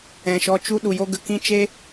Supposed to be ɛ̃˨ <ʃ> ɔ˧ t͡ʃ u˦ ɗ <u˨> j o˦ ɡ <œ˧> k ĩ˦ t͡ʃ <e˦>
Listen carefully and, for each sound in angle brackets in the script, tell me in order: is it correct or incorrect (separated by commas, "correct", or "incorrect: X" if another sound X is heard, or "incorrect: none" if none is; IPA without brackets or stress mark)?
correct, correct, incorrect: ə˧, correct